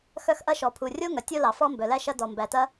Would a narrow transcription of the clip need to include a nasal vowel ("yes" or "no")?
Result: no